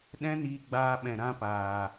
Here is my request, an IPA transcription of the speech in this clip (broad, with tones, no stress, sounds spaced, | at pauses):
ɗ ɛ̃˦ n iː˧ ɡ͡b aː˧ ɓ ɛ̃˨ ɾ ã˦ p aː˨